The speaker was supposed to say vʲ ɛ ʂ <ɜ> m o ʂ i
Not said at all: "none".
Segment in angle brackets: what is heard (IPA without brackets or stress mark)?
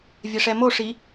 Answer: ɛ